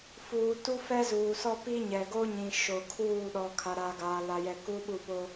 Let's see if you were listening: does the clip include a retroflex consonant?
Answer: no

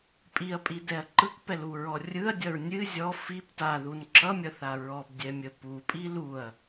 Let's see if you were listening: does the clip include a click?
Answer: yes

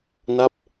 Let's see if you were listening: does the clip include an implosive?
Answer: no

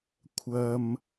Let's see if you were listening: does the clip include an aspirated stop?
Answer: yes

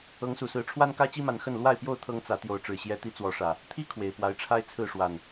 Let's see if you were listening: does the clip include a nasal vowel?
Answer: no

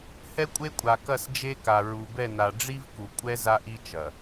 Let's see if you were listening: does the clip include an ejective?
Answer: yes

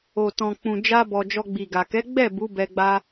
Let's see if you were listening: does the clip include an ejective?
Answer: no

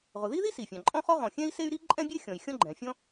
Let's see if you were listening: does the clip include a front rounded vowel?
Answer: yes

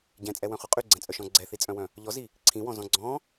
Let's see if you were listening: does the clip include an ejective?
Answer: yes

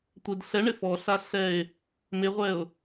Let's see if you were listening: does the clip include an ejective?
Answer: no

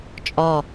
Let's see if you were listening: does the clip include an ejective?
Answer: yes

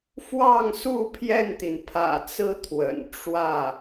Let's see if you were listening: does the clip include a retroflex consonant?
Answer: yes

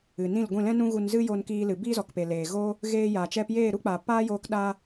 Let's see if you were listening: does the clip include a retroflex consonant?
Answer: no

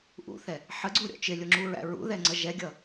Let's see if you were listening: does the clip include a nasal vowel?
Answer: no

